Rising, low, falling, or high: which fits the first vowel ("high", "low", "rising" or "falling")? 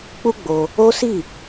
high